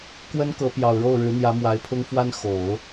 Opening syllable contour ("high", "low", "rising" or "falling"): high